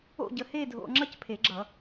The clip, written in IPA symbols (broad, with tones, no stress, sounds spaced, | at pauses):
o̰˥˧ ɟ ə˧ h e˥˧ dʱ o̰˧ ŋ͡ǁ ʌ˥˧ c pʰ e˨˩˦ ɡ͡ǁ ʌ˨˩˦